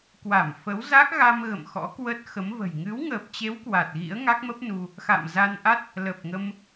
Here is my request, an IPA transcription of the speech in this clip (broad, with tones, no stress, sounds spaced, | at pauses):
k w a˧˩ m f ə˨˦ w z a˦˥ k̚ ɣ a˧ m ɣ ə̰˧˨ m x ɔ̰˧˥ k w ə˦˥ t̚ x ə˨˦ m v ə̤˨˩ j ŋ ɨ˨˦ w ŋ əː˨˩ p̚ t͡ɕ e˨˦ w k w a˨˩ t̚ ɣ ḭ˧˥ ə̯ ŋ a˦˥ k̚ m ə˦˥ p̚ n u˧ | x a̰˧˨ m z a˧ n ʔ a˦˥ t̚ | l ə˨˩ p̚ ŋ ə˧ m